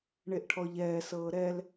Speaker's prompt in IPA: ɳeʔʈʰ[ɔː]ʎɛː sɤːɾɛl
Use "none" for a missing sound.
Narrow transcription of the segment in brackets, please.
ɔ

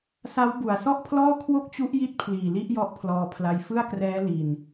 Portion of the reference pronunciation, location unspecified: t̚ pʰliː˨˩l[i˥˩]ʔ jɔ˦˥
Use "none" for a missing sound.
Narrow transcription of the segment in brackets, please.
i˥˩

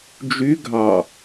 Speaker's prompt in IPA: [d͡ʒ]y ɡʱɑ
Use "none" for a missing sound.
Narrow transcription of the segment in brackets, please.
d͡ʒ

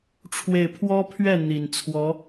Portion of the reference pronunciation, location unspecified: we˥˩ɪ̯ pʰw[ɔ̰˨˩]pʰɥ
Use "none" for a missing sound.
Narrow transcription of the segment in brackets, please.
ɔ˥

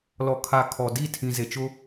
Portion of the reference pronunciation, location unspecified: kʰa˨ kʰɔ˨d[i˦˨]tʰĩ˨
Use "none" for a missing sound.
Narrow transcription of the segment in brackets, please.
i˦˨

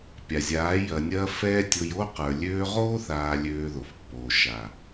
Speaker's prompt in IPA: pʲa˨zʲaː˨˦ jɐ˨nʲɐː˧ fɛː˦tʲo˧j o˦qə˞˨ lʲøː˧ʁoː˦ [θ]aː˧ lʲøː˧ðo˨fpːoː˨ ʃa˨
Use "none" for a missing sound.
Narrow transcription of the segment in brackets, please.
θ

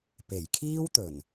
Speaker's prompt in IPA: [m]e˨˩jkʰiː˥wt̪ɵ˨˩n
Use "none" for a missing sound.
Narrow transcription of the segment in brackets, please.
p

